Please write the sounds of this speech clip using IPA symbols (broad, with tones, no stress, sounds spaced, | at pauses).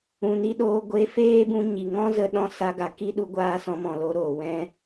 ũ˨ n i˦ ɗ oː˧ ɡʷ e˧ f eː˦ b ũ˧ ɲ i˨ ŋ ɔ̃˦ z ə˧ ɗ ɔ̃˧ s a˧ ɡ a˨ k i˦ ɗ u˧ ɡʷ aː˧ s ɔ̃˧ m ɔ̃˨ l o˧ ɾ oː˨ w ɛ̃˧